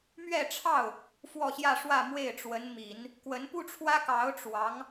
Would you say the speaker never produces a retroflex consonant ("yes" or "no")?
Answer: no